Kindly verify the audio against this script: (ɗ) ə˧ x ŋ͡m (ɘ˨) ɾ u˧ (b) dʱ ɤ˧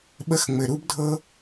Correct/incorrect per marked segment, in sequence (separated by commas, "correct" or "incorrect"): incorrect, correct, correct